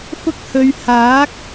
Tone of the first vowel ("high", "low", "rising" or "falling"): high